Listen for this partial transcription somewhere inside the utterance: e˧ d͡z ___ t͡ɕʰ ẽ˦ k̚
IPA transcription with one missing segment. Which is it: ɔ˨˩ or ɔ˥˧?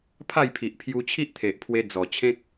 ɔ˨˩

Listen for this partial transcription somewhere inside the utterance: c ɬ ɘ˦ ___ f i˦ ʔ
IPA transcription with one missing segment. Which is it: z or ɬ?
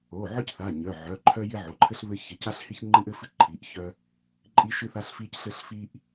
ɬ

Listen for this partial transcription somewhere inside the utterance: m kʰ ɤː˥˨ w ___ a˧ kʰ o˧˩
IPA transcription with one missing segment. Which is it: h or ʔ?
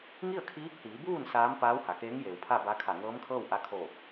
ʔ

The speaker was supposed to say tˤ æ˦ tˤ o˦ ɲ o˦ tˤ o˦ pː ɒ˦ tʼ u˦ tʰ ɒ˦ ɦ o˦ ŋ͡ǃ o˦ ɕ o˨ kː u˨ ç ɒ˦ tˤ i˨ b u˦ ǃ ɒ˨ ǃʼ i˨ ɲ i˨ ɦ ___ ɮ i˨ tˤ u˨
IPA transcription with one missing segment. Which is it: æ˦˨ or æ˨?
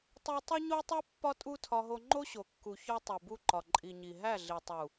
æ˦˨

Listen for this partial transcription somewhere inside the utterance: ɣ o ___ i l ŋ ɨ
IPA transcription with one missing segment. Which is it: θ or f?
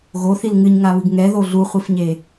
θ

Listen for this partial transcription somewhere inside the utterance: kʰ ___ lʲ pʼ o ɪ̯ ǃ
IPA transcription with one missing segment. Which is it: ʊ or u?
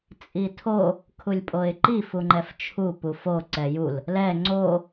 u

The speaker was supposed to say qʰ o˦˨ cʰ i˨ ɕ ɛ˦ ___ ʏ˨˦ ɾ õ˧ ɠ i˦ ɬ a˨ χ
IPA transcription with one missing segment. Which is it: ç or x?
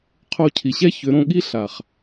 ç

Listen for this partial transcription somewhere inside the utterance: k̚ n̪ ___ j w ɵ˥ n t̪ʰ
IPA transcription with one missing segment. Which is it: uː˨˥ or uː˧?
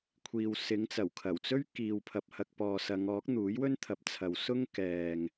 uː˨˥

